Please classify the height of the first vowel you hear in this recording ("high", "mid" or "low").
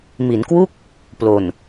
high